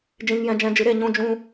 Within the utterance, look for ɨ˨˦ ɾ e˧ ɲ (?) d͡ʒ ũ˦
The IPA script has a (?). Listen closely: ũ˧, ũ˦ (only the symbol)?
ũ˦